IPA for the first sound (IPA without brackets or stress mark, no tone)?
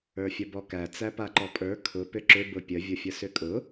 ə˞